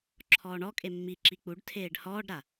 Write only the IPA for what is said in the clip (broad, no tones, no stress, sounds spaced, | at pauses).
ǁʰ ɔː ɳ ɔ kʼ e mː i ǁ i k͡p u ɖ tʰ eː ɖ h ɔː ɖ ɾ a